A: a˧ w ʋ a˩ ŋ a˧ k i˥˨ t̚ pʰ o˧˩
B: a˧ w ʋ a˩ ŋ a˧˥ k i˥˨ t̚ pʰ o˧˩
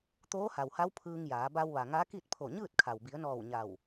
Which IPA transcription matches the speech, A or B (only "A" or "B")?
B